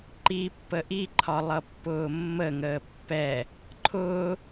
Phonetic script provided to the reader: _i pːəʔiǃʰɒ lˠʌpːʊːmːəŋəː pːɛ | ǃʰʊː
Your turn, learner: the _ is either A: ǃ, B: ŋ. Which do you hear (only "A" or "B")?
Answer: A